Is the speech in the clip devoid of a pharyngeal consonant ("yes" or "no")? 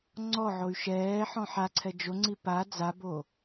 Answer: no